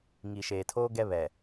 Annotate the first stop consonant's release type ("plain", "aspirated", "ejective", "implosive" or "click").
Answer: aspirated